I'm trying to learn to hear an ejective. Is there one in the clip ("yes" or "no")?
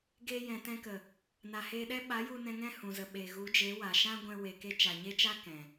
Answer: no